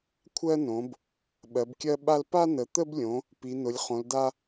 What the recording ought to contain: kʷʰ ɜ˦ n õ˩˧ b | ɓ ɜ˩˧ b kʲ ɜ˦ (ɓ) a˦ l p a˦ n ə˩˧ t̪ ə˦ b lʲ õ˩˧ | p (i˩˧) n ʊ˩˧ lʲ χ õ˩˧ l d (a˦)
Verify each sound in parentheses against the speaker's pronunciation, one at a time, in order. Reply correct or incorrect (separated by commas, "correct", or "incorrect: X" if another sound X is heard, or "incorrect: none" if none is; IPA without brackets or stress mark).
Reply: correct, correct, correct